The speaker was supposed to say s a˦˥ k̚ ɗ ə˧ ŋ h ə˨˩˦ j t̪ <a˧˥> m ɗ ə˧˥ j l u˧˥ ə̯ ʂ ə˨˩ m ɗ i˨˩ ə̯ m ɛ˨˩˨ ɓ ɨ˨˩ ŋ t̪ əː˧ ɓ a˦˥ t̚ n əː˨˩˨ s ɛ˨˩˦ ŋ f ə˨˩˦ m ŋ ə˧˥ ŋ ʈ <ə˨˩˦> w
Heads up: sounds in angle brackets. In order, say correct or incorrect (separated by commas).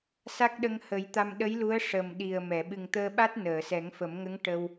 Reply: incorrect, incorrect